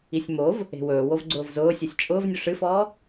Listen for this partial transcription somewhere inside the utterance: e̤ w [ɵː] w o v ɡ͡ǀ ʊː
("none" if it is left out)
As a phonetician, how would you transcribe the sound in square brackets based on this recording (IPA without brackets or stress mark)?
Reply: ɵː